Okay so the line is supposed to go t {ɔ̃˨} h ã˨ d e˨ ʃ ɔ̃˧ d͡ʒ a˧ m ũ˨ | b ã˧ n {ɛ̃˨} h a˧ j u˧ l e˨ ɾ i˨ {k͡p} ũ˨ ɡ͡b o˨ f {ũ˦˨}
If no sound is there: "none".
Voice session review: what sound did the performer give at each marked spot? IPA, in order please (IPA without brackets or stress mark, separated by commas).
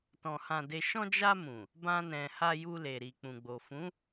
ɔ̃˨, ɛ̃˨, k͡p, ũ˨˦